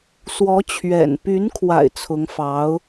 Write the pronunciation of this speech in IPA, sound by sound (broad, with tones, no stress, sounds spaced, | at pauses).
s w ɔ˧˥ t͡ɕʰ ɥ ɛ̰˨˩ n p y˧˥ n kʰ w a̰˨˩ ɪ̯ t͡sʰ ʊ˧˥ ŋ f ɑ˧˥ ʊ̯